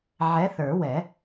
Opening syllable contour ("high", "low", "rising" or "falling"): rising